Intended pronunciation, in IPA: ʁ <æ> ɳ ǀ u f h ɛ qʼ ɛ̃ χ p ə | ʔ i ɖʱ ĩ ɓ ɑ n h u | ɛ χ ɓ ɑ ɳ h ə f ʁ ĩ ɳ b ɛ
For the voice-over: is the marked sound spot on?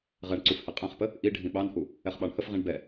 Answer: no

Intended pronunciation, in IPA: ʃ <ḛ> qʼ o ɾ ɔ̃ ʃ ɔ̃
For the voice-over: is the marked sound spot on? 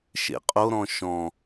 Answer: yes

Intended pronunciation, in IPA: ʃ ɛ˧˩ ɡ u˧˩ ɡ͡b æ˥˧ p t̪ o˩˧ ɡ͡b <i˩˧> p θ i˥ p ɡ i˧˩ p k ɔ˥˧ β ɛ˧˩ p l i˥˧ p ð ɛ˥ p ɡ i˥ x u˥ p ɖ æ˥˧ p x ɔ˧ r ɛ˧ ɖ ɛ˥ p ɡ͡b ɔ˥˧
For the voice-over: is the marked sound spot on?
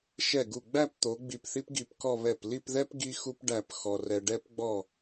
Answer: no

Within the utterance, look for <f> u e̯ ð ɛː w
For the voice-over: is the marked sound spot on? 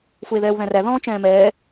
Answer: yes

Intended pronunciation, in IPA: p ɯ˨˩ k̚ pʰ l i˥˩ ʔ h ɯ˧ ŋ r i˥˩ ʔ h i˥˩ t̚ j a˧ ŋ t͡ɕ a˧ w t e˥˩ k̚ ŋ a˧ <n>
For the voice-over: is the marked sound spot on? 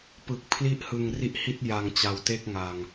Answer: no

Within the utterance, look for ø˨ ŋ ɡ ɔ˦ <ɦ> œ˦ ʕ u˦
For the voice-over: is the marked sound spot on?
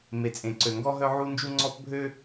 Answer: yes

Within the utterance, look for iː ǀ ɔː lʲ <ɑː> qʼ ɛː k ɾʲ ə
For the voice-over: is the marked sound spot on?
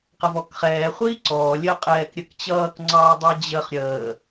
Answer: no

